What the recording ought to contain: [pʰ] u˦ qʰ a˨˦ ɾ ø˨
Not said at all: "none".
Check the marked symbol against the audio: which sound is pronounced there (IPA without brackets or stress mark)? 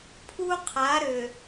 pʰ